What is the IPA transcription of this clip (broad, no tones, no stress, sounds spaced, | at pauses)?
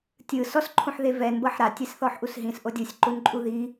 tʲ ɯ s ɔ s ǃʰ ũ ħ ð e v ɛ n b ɤ ħ ɾ a tʲ e s θ ɔ ħ ʔ u s ɦ ĩ s ʔ o dʲ ɯ sʲ ǃ u n ǃʼ u ð i